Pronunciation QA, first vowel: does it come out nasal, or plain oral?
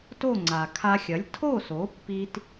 oral